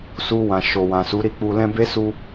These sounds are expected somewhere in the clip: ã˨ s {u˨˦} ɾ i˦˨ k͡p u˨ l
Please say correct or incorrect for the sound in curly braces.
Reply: correct